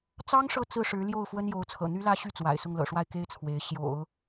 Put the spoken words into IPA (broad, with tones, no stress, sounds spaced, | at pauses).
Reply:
t͡s ɑ˥ ŋ ʂ ɤ˥˧ t͡s ɹ̩˥˩ ʂ ɻ̩˧˥ l j o˥˩ ʊ̯ f w ə˥ n j o˧˥ ʊ̯ t͡sʰ ɤ̰˨˩ n̪ y˥ l ä˥ ɕ y˥˩ t͡s w a̰˨˩ ɪ̯ s ʊ˥˩ ŋ l ɤ̰˨˩ ʂ w a˥˩ ɪ̯ k e˥ ɪ̯ t͡sʰ w e˧˥ ɪ̯ ɕ j o̰˨˩˦ ʊ̯